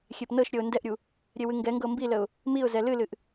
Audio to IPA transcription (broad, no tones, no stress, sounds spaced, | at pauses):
xʲ e p n ɤ ʃ ɾʲ ɤ ʊ̯ n d ɛ ʔ ɾʲ u | ɾʲ e w ɨ ŋ ɡ ɛ ŋ ɡ ɤ m b i l ə ʊ̯ | m i ʊ̯ z ɛ l ɨ l ɨ ʔ